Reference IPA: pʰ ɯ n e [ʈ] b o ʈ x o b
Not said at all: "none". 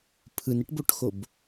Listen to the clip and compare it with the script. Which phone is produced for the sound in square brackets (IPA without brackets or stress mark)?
ʈ